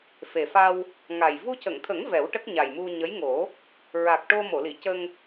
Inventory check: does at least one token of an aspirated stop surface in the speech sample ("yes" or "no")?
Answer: yes